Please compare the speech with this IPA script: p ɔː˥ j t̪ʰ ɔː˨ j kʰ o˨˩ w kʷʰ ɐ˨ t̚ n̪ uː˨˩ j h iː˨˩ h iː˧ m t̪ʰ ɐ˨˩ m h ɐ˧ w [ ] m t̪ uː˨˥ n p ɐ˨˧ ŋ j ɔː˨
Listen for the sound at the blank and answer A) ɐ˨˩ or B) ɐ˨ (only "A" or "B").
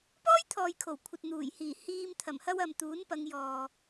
B